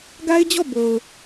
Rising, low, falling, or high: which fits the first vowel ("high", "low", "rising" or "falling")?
high